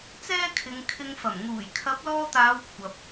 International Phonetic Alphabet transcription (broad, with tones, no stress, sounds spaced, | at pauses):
t͡s ɛː˥ kʰ ɪ˨˧ ŋ kʰ ɪ˧ ŋ f ɐ˨˩ m ŋ uː˨˩ j kʰ ɐ˨˥ p̚ l ɔː˧ t̪ aː˨˧ w kʷʰ ɐ˨ p̚